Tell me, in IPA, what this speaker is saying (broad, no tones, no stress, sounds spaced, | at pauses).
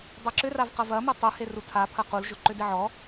dˤ a ǁ ʏ r a v q ɐ v ɐ m e tˤ u h e r u tʰ a pʰ ɐ q u l ʒ ʊ ǃ ʏ d ɪ ʕ ɔ